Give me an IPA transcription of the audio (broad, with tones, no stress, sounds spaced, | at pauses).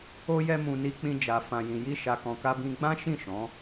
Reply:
o˧ j ɛ˧ m ũ˨ n i˧ k͡p ĩ˧ d͡ʒ a˨ f ã˨ j ĩ˨ j i˧ ʃ a˨ k ɔ̃˨ k a˧ b ĩ˧ ɡ͡b ã˦ ʃ ĩ˦˨ ʃ ɔ̃˨˦